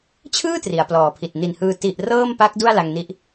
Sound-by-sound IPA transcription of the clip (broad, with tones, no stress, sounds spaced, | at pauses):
t͡ɕʰ ɯː˥˩ t r i˩˦ a̯ p l ɔː˨˩ pʰ i˨˩ t̚ n i˨˩ n h ɯː˧ t i˨˩ ʔ r ɤː˥˩ m p a˦˥ k̚ d u˥˩ a̯ l a˧ ŋ n i˦˥ ʔ